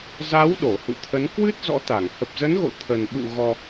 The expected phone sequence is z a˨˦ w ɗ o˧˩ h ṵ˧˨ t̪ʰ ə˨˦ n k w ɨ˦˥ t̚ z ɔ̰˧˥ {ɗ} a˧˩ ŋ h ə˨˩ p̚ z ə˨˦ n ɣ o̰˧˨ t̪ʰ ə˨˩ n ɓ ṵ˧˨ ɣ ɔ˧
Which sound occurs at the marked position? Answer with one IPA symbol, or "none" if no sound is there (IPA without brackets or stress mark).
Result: t̪